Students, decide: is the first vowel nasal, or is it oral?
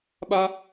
oral